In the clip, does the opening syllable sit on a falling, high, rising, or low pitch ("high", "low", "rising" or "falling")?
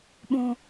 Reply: high